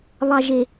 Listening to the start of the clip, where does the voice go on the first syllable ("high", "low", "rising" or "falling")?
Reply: low